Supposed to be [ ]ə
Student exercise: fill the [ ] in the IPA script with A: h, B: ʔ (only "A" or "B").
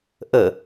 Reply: B